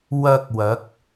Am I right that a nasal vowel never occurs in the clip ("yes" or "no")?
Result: yes